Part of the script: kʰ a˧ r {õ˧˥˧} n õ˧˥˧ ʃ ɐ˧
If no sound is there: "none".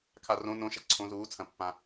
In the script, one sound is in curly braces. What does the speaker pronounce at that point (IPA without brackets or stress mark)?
õ˧˥˧